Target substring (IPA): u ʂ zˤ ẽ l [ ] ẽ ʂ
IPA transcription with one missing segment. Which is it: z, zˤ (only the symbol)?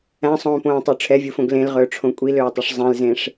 z